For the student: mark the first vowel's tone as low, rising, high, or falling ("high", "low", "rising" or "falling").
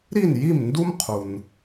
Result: falling